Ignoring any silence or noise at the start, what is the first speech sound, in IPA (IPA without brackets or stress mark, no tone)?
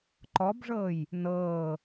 ǃ